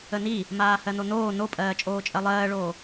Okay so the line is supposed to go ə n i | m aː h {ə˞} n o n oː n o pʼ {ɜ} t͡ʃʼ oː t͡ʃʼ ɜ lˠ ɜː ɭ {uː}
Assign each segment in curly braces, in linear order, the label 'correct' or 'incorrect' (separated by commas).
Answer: incorrect, incorrect, incorrect